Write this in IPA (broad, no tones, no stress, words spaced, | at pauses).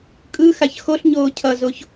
kʼɯ xaçxoɬɲoː cʰʌzoç